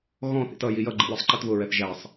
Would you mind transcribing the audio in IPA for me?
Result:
ɣɔ̃θḭt ʌji jʌɡ͡ǃḭ wɪsˤǃitβʊɹɛθ ʒæsˤ

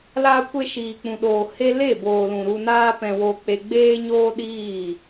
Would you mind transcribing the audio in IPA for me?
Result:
laː˧kʷe˧ ʃiː˨k͡pũ˨ɗoː˨ he˧le˦˨boː˨lũ˨ ɾu˧naː˦ pɛ̃˧wo˧k͡pe˧ ɡ͡beː˦ɲoː˦ɗiː˦˨

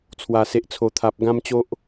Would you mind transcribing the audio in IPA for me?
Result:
t͡sʰwa˨˩se˨ʔt͡sʰo˨˩t̪ʰa˨p̚ ɡã˦mt͡ɕo˦ʔ

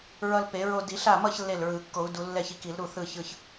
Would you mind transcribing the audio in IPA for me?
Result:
ɹʌ˧lpe˨˩˦ɹo˧ di˨˩˦ɬa˥˩mʌ˥˧ç lːe˥˩lɹɯ˨˩˦ kːo˨˩˦u̯du˨˩˦ lːɛ˥˩çi˧ki˨˩˦lɾu˥˩ θɯ˥˧çɯ˥˧ç

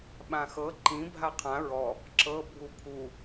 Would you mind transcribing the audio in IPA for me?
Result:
ɓãxɤ ǃĩ bʱaqʰã ɹɔ | ǁɤ bʱupʰu

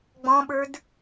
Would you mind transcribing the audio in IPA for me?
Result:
ɡ͡bɔ̃ɓə˞d

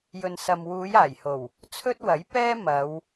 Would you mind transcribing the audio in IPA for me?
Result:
jɵ˨nsɐ˨m wuː˨˧j aː˨˩jho˨˩w | t͡sʰɵ˥t̚wɐ˨˥jpɛː˥ mɐ˨˧w

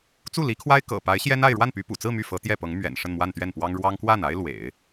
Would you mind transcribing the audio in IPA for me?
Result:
t͡su˥˩li˧˥kʰwa˥ɪ̯ kɤ̰˨˩pa˧˥ɪ̯ ɕjɛ˥na˥˧ɪ̯ ɻwa˥˩npy˧˥pṵ˨˩t͡sɹ̩˥˧ my˥˩fɤ˧˥ t̪jɛ˥˩pɤ˧˥ŋ mɥɛ̰˨˩n ʂə˥˧nmwa˥˧nt̪ɥɛ˥˩npwɑ˥ŋ ɻwɑ˥ŋ kwa˥˩na˥ɪ̯lwḛ˨˩˦ɪ̯

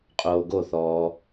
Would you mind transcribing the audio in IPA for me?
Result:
qʼoːɡoθɔː

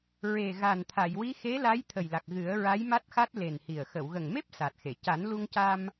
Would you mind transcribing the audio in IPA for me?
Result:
ɹe˨˩ ɣa˨˩nt̪ʰa˨˩˨jwi˧˥ xe˧˥la˧˥j t̪ʰə˨˩jla˨˩k̚ ɣɨ˨˩˦ə̯ɹa˧˥jma˦˥t̚xa˦˥t̚ le˨˩nhi˨˩ə̯ xə˨˩˨wɣə˨˩ŋme˦˥p̚ sa˨˩t̚xe˨˩˨ ca˨˩˦nlu˧ŋca˧m

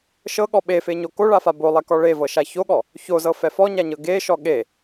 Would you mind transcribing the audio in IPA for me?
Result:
ʃɤɠɔ ɓefeɲo koɭafa bolˠɛkɔ ɭevɤʃa çoɠɔ | çozɤfɛ fɔɲaɲɤ ɡeʃɔ ɠe

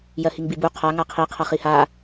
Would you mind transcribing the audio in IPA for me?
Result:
jɜhiŋbibu qʰa ŋaqʰi qʰʌχiha

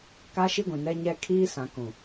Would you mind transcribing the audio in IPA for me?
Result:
ka˦ʃi˦ɡʷĩ˨nɛ˦ ɲɛ˦ kʰiː˦sã˨kũ˨

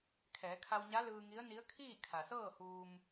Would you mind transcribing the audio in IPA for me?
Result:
kʰɛː˩˧kʰa˧wɲa˧˥ lɯː˧ŋi˧˥ə̯ni˧˥ə̯ kʰiː˥˨ kʰa˩sɤː˥˨huː˧m

